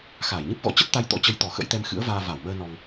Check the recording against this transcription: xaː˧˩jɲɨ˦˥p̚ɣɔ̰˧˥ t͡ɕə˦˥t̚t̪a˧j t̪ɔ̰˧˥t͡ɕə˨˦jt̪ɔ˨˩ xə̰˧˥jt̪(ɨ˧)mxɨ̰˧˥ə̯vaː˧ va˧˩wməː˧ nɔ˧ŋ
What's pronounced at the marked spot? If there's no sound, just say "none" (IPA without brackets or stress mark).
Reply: ɛ˧